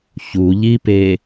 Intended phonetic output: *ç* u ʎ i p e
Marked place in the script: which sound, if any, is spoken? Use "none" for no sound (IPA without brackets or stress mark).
ç